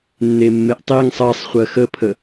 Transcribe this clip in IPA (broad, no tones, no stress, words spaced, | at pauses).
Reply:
nːemːeʔtˤiŋ sˤɜsˤχʷɜ xəpʰə